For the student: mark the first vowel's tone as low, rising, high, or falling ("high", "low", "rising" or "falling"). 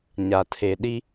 low